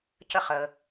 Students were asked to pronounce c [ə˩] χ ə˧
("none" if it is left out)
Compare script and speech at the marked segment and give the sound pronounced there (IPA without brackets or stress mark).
ə˥˩